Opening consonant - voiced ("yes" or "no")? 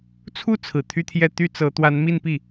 no